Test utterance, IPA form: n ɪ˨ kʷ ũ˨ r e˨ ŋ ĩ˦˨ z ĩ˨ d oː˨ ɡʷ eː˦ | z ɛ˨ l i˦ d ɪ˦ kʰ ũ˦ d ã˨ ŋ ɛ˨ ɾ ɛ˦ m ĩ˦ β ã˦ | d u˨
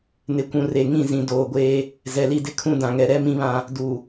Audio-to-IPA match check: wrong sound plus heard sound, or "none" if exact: none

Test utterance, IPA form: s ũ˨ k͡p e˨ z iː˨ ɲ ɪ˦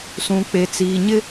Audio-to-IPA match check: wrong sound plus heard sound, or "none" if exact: z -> t͡s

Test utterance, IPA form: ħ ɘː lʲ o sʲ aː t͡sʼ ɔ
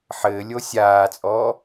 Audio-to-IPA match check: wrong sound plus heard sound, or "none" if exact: none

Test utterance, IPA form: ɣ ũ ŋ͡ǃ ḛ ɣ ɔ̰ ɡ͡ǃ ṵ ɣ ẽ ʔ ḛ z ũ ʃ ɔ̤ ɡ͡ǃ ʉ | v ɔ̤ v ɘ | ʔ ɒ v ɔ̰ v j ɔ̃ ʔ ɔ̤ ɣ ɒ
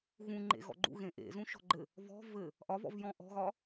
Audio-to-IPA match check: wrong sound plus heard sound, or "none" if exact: ʉ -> ɘ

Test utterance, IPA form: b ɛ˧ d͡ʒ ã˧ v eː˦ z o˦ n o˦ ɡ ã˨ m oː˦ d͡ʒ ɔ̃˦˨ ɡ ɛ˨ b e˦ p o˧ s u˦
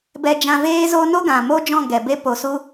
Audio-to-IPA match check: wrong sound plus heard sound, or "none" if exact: none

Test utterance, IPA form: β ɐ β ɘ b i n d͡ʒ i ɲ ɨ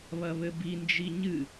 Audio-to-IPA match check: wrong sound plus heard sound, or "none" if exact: none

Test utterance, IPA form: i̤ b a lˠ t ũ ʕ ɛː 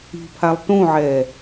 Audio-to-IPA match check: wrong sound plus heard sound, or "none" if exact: b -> pʰ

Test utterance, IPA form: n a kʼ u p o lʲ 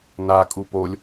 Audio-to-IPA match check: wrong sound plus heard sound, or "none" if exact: none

